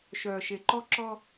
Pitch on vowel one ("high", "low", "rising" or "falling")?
low